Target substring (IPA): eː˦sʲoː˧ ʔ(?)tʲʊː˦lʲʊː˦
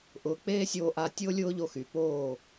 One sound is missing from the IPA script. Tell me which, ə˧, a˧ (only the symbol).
a˧